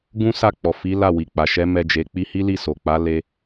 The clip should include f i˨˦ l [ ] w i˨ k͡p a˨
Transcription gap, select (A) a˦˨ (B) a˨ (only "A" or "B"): A